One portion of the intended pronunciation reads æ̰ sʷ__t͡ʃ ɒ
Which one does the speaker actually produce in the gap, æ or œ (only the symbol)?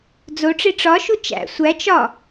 æ